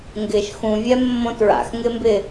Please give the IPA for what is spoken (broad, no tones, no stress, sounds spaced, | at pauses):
ŋ ɡ ɪ ʃ x ũ vʲ ɛ mː õ t ɹ a̰ x ŋ ɪ m b ɪ